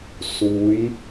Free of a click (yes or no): yes